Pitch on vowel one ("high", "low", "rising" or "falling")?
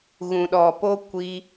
low